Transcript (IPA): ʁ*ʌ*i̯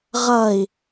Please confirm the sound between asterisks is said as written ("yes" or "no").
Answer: yes